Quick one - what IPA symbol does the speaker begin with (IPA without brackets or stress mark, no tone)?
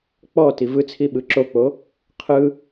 k͡p